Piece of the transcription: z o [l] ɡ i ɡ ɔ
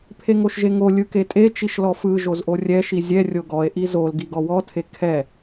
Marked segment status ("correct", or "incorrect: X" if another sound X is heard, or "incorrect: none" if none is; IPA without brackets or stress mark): correct